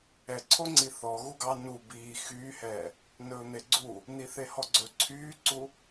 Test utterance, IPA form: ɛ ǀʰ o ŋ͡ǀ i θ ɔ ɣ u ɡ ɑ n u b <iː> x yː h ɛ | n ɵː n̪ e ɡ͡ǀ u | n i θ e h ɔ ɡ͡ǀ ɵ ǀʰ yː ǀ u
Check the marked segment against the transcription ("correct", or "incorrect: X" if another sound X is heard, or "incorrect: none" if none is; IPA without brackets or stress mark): correct